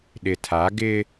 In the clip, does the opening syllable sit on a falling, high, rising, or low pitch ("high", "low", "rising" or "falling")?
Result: low